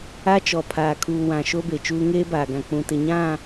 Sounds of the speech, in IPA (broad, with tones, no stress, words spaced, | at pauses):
a˦t͡ʃɔ˨pʰaː˨ kʰuː˨wã˨ ʃo˦be˨t͡ʃuː˦ ŋeː˦baː˨ɡã˨ k͡pũ˨tɪ˨ɲã˦˨